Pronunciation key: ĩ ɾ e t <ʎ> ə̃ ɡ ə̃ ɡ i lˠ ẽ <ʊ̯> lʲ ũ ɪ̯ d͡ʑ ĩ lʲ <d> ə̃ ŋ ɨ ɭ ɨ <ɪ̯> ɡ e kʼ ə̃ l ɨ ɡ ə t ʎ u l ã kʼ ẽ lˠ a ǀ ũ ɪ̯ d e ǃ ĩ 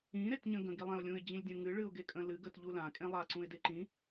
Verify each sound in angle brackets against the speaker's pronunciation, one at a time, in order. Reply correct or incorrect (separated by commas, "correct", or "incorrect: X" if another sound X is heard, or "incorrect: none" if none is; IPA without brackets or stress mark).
incorrect: ɲ, correct, incorrect: dʲ, incorrect: ʊ̯